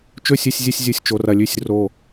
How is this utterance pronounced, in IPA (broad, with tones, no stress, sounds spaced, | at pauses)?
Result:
t͡ʃ ɵ˥˧ sʲ ɨ˥˧ sʲ zʲ ɨ˥˧ sʲ zʲ u˧˩ sʲ t͡ʃ o˧ r ɐ˧ lʲ ʉ˥˧ sʲ r o˧˩